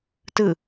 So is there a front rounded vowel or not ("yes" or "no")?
no